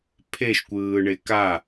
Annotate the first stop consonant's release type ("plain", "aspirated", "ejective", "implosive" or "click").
aspirated